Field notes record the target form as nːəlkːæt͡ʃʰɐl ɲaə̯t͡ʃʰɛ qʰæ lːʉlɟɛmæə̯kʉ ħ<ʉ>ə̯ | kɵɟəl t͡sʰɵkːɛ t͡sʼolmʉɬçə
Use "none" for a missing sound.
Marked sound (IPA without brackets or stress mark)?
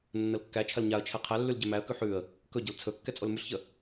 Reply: ʉ